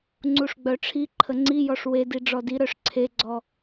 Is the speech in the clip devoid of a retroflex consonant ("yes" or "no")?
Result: no